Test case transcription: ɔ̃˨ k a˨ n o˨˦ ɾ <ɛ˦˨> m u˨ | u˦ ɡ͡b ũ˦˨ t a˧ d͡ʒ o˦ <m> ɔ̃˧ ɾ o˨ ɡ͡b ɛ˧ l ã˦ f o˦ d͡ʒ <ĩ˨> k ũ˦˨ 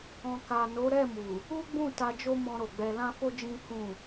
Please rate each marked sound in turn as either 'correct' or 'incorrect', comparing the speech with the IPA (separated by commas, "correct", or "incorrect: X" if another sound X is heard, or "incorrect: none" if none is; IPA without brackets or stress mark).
correct, correct, incorrect: ĩ˦